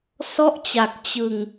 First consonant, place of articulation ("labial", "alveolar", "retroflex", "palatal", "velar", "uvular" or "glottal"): alveolar